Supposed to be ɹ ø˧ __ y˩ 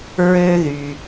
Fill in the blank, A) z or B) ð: B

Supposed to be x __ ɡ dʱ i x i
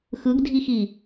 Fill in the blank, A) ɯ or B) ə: A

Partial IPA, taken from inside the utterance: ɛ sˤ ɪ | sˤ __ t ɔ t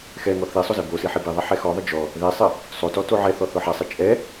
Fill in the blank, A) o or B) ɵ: A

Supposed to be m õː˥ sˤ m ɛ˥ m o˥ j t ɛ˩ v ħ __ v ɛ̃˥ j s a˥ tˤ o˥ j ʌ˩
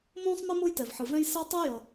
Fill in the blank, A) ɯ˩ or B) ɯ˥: A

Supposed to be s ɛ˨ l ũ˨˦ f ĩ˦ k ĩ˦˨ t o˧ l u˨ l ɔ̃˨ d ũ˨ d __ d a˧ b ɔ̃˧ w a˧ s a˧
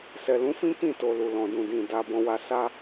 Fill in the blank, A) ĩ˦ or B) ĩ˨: B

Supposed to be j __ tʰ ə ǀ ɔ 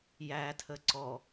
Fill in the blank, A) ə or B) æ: B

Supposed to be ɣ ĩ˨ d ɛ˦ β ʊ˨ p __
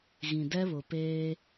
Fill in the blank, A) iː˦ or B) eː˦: B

